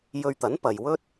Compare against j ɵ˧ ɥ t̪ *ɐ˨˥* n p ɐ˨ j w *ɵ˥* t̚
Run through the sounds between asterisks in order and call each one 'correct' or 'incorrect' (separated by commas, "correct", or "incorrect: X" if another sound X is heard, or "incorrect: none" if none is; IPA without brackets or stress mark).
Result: correct, correct